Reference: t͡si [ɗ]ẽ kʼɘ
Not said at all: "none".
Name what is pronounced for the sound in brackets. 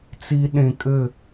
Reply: ɗ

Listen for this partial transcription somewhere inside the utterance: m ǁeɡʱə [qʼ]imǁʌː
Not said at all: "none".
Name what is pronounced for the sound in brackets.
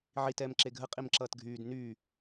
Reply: qʼ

